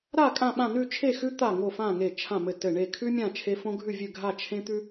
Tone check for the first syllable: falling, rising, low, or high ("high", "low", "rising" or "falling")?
falling